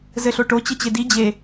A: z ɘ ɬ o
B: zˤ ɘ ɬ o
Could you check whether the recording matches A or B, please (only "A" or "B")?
A